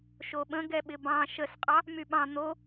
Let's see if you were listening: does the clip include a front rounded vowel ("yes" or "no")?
yes